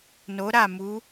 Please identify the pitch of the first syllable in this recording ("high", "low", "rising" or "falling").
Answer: rising